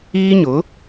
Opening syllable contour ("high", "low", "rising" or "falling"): high